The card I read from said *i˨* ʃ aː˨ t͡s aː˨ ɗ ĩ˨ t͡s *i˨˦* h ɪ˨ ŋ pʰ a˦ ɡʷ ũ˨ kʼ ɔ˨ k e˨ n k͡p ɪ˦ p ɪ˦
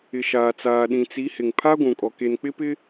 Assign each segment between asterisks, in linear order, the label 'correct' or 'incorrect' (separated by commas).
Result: incorrect, correct